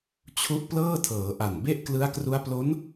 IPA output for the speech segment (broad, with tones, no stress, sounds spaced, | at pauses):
t͡ɕʰ u˦˥ ʔ p l ɤː˥˩ tʰ ɤː˩˦ ʔ a˨˩ n b e˥˩ ʔ k l ɯ˦˥ a̯ k r u˦˥ a̯ p l o˦˥ n